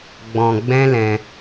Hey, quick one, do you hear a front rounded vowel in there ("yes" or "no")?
no